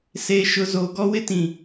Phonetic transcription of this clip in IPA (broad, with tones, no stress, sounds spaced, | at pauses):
s eː˨ ʃ ʊ˨ z o˨ ɡ ɔ˦ w ɪ˦ t ĩ˨